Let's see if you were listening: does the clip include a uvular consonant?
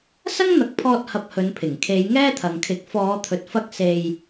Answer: no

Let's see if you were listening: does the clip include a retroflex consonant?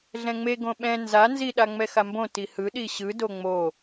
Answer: no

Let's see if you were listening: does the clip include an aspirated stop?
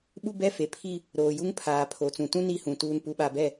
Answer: yes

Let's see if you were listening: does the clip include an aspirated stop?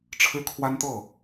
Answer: yes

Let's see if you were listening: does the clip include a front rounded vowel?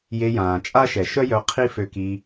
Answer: yes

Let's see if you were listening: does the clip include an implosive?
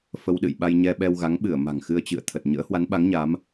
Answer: yes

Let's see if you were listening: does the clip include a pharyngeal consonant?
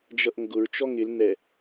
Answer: no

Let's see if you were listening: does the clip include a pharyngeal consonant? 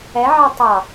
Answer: yes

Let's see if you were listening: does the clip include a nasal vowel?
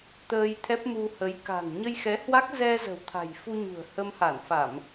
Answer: no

